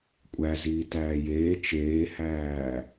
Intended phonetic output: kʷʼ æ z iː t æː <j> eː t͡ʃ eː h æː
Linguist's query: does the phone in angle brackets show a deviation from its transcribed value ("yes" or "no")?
no